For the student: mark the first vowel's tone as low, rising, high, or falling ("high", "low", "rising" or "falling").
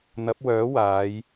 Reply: rising